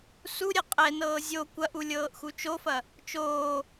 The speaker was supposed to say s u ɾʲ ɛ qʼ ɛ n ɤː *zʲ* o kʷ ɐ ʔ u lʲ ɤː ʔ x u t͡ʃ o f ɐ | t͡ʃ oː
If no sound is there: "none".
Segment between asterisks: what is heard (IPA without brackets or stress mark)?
zʲ